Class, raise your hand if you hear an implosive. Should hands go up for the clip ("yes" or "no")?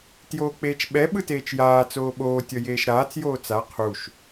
yes